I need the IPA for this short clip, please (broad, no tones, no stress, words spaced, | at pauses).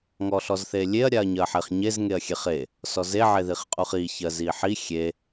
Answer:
ŋɔɬɔzθelʲeɐ̯ ɾʲaɐ̯ɲɜħeχɲez ŋeɐ̯xʲeχe | sɔze ʕeðiχqʼuχi çɜziħi xʲe